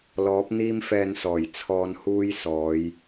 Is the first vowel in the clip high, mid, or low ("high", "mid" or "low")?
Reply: mid